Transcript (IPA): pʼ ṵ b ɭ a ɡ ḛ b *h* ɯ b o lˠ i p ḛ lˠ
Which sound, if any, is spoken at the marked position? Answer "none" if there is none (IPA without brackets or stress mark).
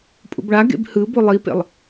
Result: h